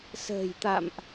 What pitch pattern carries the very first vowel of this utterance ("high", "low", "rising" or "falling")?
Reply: low